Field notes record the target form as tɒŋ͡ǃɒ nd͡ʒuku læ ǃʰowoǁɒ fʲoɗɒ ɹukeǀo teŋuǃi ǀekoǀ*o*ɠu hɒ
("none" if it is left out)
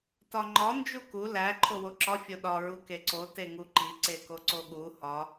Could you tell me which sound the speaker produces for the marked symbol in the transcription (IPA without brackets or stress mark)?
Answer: o